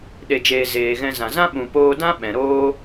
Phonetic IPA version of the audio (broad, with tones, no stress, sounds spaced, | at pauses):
ɗ e˨ d͡ʒ eː˨ z eː˨ ɣ ɛ̃˧ z ã˨ z ã˦ ɓ ũ˨ p oː˧ d ã˦ ɓ ɛ̃˨ ɾ oː˦